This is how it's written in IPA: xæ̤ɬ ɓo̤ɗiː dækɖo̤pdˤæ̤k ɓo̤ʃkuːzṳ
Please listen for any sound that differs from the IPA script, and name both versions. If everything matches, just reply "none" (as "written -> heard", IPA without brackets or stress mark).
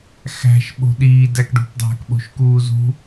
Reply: ɬ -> ʃ